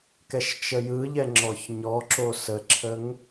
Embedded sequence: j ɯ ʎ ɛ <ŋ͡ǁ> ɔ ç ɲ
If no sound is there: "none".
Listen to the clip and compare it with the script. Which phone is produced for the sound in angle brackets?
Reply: ŋ͡ǁ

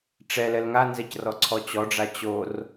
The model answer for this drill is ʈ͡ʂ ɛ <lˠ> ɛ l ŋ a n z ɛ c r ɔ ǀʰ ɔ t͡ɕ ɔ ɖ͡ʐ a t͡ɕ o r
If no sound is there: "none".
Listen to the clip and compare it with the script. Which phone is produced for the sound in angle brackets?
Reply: l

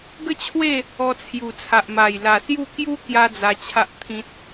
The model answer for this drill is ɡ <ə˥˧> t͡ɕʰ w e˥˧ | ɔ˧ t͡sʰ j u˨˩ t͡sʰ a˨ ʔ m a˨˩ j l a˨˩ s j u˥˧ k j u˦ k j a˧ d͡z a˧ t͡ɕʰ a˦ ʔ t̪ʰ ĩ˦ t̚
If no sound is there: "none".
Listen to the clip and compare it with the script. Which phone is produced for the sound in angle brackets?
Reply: ə˥˧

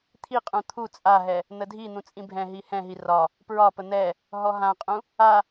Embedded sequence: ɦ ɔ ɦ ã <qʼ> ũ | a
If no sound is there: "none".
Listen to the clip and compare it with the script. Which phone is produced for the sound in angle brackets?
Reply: qʼ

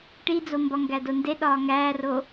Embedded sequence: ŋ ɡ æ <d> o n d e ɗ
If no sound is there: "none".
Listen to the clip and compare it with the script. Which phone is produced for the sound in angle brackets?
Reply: d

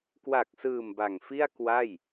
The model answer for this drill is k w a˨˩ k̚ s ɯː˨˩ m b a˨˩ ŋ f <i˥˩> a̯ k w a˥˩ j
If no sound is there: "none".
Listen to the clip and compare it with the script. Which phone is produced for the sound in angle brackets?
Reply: i˥˩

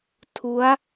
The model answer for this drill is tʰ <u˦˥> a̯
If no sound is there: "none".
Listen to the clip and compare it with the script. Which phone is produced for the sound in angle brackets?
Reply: u˦˥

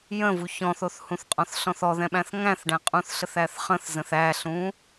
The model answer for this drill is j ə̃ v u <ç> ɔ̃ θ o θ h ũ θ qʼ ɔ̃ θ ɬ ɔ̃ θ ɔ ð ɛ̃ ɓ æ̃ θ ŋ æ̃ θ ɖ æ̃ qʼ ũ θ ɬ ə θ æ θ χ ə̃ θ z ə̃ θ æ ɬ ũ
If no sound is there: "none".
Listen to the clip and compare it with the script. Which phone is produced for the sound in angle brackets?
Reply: ç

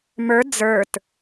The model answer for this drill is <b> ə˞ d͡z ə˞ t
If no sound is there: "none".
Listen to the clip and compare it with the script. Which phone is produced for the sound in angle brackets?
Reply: m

